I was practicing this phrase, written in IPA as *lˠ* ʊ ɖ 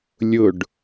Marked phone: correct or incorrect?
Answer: incorrect